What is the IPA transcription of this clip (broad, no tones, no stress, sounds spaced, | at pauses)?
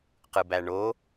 q ɯ b æ ɳ o